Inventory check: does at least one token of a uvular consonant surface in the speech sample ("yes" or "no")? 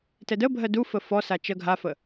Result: no